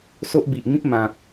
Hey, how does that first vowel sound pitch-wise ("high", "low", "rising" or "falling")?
high